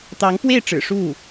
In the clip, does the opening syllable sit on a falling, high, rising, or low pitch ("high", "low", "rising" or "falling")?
rising